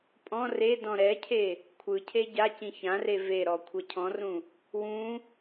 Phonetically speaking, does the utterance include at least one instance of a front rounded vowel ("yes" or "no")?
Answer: no